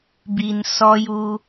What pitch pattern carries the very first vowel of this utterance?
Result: low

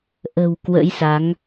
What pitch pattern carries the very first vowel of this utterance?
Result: low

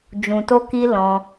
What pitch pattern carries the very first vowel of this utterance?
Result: low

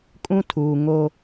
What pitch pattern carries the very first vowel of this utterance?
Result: high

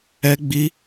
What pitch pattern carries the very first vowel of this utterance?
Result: high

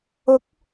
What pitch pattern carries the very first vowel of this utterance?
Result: rising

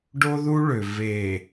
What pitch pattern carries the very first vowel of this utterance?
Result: high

